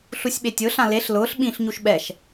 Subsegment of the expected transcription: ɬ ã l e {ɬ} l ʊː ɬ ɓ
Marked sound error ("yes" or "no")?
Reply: no